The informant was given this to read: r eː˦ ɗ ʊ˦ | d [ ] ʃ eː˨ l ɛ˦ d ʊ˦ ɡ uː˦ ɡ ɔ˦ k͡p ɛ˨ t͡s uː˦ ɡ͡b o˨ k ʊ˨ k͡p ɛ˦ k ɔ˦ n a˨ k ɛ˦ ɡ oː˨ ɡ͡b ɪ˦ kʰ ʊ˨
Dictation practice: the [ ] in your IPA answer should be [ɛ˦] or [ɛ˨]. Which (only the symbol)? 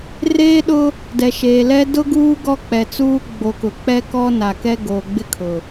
ɛ˨